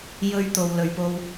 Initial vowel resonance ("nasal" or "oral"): oral